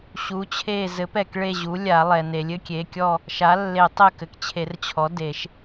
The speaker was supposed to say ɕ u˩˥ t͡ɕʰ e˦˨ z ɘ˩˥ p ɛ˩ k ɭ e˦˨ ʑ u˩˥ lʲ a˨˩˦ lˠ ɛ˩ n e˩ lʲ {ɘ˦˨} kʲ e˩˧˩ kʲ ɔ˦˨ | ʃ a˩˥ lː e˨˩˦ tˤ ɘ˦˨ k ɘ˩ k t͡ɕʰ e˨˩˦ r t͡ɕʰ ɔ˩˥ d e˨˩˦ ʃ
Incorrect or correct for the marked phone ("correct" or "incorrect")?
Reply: incorrect